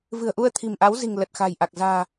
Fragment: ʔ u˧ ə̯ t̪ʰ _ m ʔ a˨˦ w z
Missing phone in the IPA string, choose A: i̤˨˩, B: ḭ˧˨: A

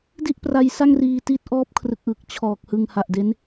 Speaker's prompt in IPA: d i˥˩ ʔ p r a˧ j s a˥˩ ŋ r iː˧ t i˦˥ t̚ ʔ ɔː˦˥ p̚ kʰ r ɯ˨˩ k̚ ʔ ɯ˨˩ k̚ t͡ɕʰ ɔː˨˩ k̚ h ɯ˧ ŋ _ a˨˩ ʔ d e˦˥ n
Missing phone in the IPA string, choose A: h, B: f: A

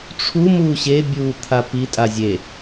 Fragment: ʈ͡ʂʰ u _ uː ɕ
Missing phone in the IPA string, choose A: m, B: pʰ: A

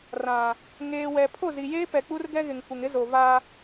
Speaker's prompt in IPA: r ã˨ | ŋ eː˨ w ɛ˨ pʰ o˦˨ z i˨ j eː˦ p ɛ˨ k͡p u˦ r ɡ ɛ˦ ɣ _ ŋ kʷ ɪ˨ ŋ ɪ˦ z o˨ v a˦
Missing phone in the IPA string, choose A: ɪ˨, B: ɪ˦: A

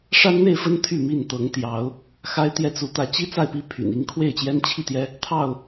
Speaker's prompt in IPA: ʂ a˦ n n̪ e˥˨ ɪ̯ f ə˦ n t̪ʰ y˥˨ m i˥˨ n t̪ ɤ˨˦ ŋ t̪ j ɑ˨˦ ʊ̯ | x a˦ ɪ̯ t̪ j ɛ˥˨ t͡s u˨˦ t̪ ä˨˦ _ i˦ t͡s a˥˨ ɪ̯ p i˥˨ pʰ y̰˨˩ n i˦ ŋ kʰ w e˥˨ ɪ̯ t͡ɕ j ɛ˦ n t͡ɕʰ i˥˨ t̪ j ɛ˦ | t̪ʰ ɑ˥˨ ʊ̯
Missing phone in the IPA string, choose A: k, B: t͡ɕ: B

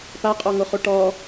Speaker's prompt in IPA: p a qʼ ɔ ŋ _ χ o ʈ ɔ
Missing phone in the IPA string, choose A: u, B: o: B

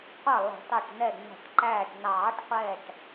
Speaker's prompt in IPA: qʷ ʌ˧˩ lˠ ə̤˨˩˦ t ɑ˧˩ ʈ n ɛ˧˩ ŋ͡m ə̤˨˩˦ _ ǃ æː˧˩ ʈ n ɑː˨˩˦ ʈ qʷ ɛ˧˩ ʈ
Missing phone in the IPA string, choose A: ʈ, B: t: A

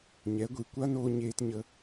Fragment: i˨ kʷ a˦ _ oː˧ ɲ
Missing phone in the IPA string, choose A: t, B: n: B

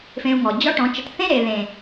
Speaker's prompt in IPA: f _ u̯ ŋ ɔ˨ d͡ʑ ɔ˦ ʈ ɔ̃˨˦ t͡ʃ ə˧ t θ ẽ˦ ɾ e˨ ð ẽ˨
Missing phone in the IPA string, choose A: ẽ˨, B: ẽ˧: B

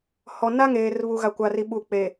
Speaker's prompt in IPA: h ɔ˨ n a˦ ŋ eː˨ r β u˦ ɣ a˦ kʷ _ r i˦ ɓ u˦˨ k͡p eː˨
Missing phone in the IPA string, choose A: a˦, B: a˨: A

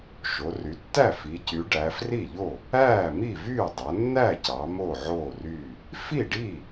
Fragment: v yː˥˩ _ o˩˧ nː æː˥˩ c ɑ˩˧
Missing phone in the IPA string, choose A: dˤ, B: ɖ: A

